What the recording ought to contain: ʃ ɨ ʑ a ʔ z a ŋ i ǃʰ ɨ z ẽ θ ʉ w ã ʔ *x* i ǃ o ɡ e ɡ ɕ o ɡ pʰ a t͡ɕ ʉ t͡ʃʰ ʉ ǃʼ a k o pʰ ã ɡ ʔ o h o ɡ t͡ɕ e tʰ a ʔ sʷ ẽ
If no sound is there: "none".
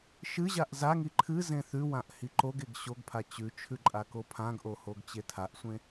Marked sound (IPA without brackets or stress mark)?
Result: h